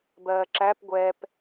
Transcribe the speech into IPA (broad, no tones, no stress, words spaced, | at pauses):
bɜːǁæp ɡʷɛp